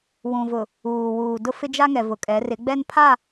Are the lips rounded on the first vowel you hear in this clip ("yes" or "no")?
yes